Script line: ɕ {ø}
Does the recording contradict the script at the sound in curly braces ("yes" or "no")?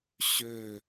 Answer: no